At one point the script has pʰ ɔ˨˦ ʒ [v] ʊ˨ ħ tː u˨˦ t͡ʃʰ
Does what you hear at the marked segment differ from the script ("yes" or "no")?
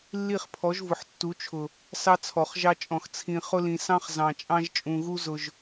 no